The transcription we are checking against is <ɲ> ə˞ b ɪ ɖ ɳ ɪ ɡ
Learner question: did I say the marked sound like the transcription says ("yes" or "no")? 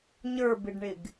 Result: yes